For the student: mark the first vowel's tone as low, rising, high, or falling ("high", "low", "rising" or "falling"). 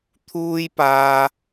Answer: high